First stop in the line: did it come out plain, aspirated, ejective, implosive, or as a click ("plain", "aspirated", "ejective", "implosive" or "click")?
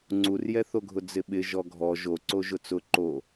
click